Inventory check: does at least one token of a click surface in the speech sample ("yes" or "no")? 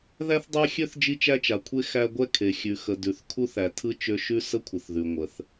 no